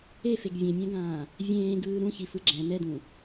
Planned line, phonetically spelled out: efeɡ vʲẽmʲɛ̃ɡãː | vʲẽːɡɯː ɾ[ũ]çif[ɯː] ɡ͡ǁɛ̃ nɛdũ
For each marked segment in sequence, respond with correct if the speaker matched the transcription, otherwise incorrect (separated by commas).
correct, incorrect